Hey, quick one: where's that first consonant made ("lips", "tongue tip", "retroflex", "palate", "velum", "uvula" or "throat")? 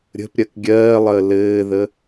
tongue tip